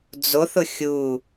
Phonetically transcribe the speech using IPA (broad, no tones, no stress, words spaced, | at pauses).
d͡zoθʊ xʲu